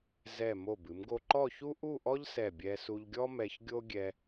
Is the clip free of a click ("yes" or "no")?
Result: no